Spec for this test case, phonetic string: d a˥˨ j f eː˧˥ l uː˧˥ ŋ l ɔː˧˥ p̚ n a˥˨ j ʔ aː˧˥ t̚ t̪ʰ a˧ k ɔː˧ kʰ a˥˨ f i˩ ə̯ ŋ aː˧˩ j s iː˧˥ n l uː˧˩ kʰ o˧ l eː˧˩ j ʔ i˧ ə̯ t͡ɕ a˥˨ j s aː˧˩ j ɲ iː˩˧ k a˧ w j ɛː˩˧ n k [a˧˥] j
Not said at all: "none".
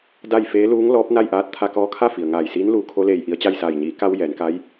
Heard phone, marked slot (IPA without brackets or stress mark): a˧˥